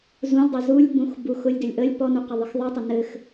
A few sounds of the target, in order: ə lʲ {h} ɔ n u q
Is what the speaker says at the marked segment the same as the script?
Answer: no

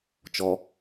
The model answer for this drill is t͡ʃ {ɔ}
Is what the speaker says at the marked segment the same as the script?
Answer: yes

